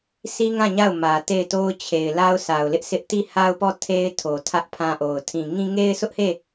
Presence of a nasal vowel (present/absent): present